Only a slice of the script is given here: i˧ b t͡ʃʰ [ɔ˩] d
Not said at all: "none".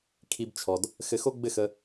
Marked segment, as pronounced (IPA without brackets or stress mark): ɔ˩